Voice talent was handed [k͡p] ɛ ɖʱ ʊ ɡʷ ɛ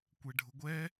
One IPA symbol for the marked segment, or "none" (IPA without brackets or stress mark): kʷ